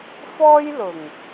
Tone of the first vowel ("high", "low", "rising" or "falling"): high